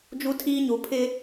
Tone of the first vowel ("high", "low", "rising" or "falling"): high